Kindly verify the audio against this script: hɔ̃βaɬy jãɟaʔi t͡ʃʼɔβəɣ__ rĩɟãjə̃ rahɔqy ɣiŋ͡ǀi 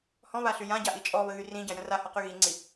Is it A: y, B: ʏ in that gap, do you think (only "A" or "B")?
A